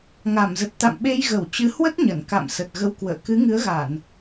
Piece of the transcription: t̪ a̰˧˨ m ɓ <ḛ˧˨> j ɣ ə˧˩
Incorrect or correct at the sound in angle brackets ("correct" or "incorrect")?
incorrect